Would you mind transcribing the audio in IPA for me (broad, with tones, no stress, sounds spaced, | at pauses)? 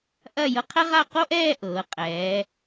ʔ ɐ˥˧ j ɤ˧ qʰ ɛ˥ ʁ a˥˧ q o˥ ʔ ɛː˥˧ ʔ ɤː˩˧ qʼ ɛː˩˧